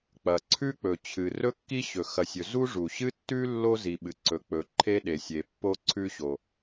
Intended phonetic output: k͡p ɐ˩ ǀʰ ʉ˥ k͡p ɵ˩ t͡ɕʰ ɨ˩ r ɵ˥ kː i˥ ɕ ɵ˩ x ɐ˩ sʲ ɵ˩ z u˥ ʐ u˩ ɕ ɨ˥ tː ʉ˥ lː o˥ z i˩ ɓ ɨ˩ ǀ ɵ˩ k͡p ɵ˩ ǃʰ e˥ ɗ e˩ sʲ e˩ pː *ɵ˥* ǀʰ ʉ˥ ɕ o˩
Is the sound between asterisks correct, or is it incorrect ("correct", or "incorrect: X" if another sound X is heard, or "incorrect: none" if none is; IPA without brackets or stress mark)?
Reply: incorrect: o˥